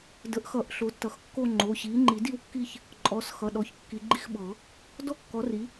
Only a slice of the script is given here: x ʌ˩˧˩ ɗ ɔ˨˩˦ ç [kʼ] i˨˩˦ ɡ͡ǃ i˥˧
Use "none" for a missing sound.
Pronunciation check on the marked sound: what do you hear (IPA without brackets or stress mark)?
kː